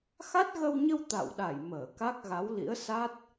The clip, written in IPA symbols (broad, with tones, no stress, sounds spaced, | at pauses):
x a˦˥ t̚ ɣ ə˧ w ɲ ə˧ w t̪ a̰˧˨ w ɗ a˧˩ j m əː˧˩ k a˦˥ k̚ ɣ a˨˦ w l ḭ˧˥ ə̯ s a˦˥ t̚